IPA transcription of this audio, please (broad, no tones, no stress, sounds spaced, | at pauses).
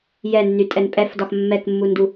j ɛ nː y tʼ ɛ n pʼ ɛ f d ɒ x mː ɛ k mː u n d u